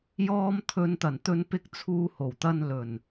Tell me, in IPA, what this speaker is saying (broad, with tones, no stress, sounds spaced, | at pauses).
j ɔː˧ m t̪ʰ ɵ˨˧ n t̪ ɐ˨˩ n t̪ ɵ˧ n p ɪ˧ k̚ t͡sʰ uː˧ h o˨˩ w t̪ ɐ˧ n l ɵ˨˩ n